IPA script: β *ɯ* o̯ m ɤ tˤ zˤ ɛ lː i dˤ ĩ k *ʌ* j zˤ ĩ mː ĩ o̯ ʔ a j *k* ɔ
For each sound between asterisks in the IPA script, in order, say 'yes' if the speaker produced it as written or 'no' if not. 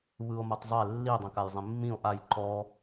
yes, no, no

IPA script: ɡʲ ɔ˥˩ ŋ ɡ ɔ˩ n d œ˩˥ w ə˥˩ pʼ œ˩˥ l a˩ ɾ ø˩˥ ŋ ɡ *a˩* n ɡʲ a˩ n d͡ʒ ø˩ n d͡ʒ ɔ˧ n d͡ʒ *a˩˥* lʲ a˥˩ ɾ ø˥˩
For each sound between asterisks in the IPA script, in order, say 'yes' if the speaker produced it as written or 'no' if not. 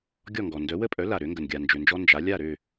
no, yes

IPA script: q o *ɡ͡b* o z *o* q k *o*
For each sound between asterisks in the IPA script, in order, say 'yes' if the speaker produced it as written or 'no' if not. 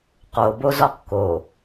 no, no, yes

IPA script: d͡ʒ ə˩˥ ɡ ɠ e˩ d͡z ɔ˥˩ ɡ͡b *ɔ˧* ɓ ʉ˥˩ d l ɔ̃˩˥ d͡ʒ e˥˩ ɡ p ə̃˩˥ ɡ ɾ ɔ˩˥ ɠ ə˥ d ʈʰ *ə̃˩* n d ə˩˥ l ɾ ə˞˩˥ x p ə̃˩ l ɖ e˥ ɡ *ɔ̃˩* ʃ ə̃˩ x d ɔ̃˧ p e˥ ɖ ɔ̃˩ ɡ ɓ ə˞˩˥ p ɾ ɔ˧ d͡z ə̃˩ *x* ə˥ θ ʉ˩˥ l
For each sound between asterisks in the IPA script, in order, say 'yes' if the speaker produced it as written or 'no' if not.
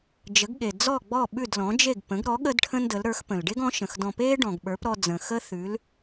no, no, no, yes

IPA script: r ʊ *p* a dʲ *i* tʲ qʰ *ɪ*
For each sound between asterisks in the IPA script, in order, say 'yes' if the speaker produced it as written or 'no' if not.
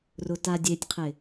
no, no, yes

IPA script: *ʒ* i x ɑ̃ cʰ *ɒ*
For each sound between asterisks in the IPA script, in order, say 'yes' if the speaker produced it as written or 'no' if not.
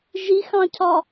yes, yes

